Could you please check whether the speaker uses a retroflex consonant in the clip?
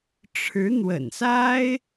yes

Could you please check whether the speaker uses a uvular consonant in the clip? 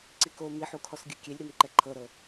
no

